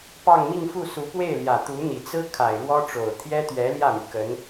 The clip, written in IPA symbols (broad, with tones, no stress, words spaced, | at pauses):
pɑ˥˧ŋmi˥˧ŋfu˥˩ su˧˥pwe˥˩ɪ̯ljä˨˩ t̪u˧˥n̪i˨˩ t͡sɹ̩˥ kʰa˨˩ɪ̯ɻwɔ˥ʈ͡ʂo˨˩ʊ̯ t̪ʰjɛ˥t̪ɥɛ˧˥ ljä˥˩my˩ kə˧˥n